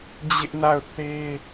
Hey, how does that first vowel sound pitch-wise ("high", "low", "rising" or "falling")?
high